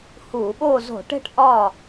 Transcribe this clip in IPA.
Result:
huː˧˩˧ɓoː˥˨ zo̤˧˩˧ʈe̤˥˨ʈ ʔɒ˥˨

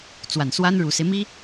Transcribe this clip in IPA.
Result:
t͡swa˨˩nswa˥nɻu˨˩se˦ɪ̯ mi˥

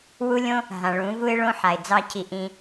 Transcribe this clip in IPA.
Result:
wu˦lʲõ˦ | ɦã˨ɭũ˨˦ vu˦ɪ̯ɭõ˦ħa˨ɪ̯ d͡zɑ˦cʰi˧ʔĩ˧

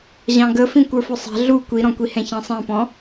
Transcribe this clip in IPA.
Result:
ʑɑ̃ɡəfĩ kʷə˞fʊsˤæ̤ ɮu kʷiɾɔ̃kʷi hɛ̃çɑ̃sˤæ̃pɔ̃

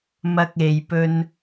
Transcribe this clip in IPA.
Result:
mɐ˧k̚ e˨jpɵ˧n

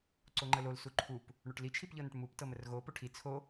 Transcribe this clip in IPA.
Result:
ǀoŋ͡ǃəlol suǃʰup | ɳoʈli t͡ʃʰipʎɤnəʈmup tɤmərɣo poʈʰi t͡sʰo

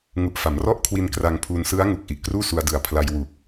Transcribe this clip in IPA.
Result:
ŋu˨˩ʔfa˩˦mrɔ˥˩ʔkʰwi˧n kra˧ŋpʰuː˧n sɯ˦˥a̯ŋu˨˩k̚ ʔi˨˩ʔkruː˥˩su˧a̯dɯ˨˩a̯ pʰla˧j wu˨˩k̚

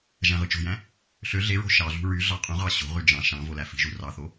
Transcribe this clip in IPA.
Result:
ʒæ̃ʁɯt͡ʃo̤jæ̃ | ɬø ɮeɹo̤ ʃɑɮṳ ɹy ɮɑqʼũʁɑ ɕo̤ʁy d͡ʒɑ̃ ʃɑ̃ volæfi̤ʒu rɑθo

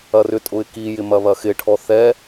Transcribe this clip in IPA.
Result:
ɐrʏtʼʊɪ̯ kijɪ mɐβɐxɪʈʰɔ θɛ

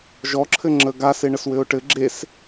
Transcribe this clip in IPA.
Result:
ʒɔǁʰɘŋ͡ǁə ɡase ɳəswɘʊ̯ʈɘ ɡ͡ǁes

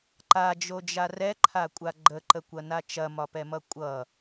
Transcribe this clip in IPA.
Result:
ǃad͡ʒod͡ʒa rɛǃʰakʷʼa ɡ͡ǃəǃəkʷɐna t͡ʃɐmɒpɛmʌ kʷʼʌ

